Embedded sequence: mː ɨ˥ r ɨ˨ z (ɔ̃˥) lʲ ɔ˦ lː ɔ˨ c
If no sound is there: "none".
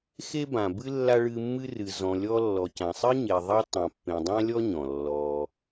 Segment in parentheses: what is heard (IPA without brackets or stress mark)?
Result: ɔ̃˨